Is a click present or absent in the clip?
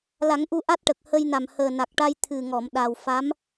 absent